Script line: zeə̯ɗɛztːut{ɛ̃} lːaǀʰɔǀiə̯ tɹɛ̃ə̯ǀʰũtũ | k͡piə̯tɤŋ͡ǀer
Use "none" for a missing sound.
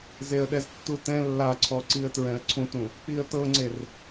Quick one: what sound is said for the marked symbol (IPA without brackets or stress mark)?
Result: ɛ̃